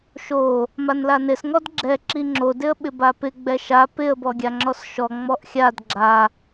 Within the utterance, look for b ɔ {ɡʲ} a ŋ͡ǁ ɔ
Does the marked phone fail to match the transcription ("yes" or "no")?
no